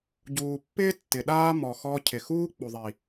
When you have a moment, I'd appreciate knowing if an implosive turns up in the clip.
yes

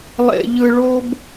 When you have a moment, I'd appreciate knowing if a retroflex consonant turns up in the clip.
yes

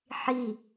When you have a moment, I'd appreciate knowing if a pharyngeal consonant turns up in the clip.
yes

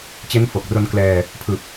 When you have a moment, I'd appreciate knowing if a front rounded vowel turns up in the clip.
no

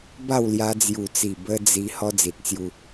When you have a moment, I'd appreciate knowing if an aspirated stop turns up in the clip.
no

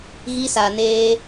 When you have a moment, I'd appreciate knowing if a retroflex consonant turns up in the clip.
no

